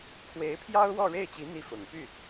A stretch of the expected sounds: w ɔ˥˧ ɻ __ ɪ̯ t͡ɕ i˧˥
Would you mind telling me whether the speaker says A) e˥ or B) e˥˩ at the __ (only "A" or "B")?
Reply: B